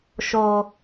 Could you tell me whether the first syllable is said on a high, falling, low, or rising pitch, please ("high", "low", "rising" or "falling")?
low